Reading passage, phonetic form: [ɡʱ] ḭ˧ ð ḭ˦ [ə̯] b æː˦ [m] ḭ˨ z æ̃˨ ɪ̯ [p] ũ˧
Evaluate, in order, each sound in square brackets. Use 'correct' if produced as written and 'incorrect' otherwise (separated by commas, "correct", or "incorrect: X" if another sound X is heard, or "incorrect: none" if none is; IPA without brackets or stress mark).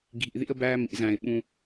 correct, correct, correct, incorrect: ɓ